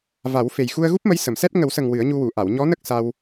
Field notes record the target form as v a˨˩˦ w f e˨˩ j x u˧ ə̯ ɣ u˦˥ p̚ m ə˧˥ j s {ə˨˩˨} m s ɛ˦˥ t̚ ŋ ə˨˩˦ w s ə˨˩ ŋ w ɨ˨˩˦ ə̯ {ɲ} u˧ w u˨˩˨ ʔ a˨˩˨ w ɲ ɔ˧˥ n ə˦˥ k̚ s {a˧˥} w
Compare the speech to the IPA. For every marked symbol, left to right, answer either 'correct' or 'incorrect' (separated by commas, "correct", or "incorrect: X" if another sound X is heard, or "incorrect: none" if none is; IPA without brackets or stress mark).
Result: correct, correct, incorrect: a˧